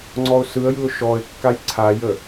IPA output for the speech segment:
ŋ͡ǀɔʊ̯sɯə̯jɯʊ̯ ʃɔɪ̯kːaj ǀʰajə

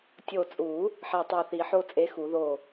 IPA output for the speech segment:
tʲo˧˩t͡sʼu˨˩˦ | ħe˧˩tˤe˧˩θi˨˩˦ ħo˦t͡sʼe˨˥xu˨˩˦ðo˧˩

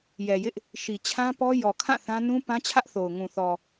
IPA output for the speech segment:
jɛ˨jɪ˦ʔ | ʃi˨t͡ɕʰã˦pɔ˦ jɔ˨kʰã˦˨ θã˦ nũ˦pã˦t͡ɕʰä˦ʔθo˨ʊ̯ ŋũ˨θɔ˨

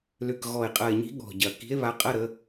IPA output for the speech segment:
lʏ˨˩kɣɔ˨˩e̯qʼɐ˨˩e̯ɲi̤˨˦ ɠɔ̤˨˩ɟɐ˨˩ ki̤˨˦e̯βa˨˦qʼɐ˧˥˧ ɾə˨˦

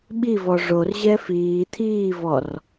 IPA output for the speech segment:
ɓivɔ ʐorʑɛ fiː t̪ʰiːvɔr

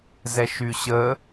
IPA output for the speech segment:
zɛʃyɕə

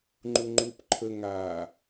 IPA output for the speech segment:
ŋ͡ǃuŋ͡ǃup ǃʰə ŋa

